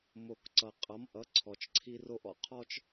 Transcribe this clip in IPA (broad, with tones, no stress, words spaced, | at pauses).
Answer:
mo˨kǀʌ˨ qʼʌ˨˦mʔʌ˨˦ǀʰɔ˨t͡ʃ ǀʰi˦ro˦ʔɔ̰˨ qʰɔ˦t͡ʃ